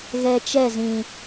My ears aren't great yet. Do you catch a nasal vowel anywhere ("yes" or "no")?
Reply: yes